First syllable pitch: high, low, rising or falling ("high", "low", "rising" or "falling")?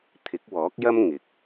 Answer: rising